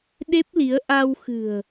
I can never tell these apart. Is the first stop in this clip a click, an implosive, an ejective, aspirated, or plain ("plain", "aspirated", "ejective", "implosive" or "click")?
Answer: implosive